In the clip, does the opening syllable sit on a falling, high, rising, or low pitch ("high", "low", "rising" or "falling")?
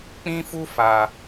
high